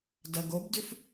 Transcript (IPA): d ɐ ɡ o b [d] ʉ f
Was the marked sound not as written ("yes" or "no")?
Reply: no